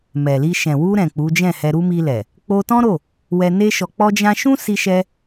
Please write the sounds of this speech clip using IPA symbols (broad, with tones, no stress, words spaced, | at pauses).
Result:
mɛ˨li˧ ʃɛ̃˨wu˧ɾɛ̃˨ k͡pu˨˦d͡ʒɛ̃˦˨hɛ˧ɾu˦ mi˧lɛ˨ | k͡po˧tɔ̃˦ɾo˦˨ | wɛ˧ne˦ ʃɔ˧k͡pɔ˦d͡ʒã˦ ʃũ˦si˧ʃɛ˧